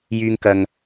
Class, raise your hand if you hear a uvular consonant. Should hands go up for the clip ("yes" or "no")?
no